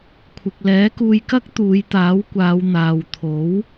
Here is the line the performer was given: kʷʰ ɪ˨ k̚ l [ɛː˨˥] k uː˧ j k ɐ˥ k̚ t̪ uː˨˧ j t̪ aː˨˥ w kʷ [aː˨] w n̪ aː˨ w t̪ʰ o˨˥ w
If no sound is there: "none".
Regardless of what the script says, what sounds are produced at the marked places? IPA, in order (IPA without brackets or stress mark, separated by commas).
ɛː˨˥, aː˨˧